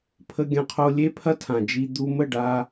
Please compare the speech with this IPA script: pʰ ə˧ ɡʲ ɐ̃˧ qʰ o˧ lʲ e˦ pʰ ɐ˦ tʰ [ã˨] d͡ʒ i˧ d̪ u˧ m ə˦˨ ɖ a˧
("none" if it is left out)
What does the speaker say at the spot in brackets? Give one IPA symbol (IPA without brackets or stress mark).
ã˨